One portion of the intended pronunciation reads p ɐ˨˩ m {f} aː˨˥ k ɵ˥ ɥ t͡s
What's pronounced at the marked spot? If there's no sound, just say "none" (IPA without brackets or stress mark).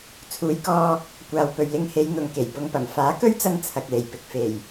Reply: f